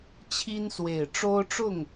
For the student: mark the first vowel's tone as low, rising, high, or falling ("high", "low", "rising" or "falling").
high